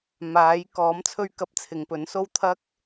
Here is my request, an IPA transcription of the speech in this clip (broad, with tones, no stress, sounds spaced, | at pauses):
m aː˨˥ j k ɔː˨˥ m t͡sʰ ɵ˧ ɥ k ɐ˧ p̚ t͡sʰ ɪ˨ ŋ p ɵ˨˥ n s o˥ w t̪ʰ ɐ˥ k̚